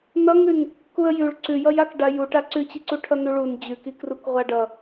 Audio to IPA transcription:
nʌŋʉn | kuə̯jʉɭ ǀʉjʌjak ɖajuʈ aǀʉt͡ɕiǀu ʈʰʌnuɭun d͡ʑʉki krukʁʷaɖʌ

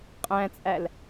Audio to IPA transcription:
qʼæ̃t͡sʼæl

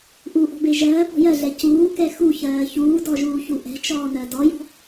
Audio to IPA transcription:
ʔuʔɔ̤be ʒɜːpɔ̤ jɜɮɛ cuːkɛ xuçɜː çuːdɔʒuːçu ʔɛ̤t͡ʃɔːnɜ dɔjɔ̤

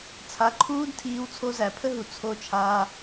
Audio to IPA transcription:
t͡sʰa˨˦ǃʰuː˦dtʰiː˧w t͡sʰo˧zæ˨pʰə˦ɦu˨ t͡sʰo˧t͡ʃʰaː˧

